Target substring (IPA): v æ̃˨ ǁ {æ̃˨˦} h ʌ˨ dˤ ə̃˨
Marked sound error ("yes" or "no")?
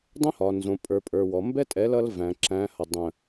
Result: no